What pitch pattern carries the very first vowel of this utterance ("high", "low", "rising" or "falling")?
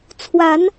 rising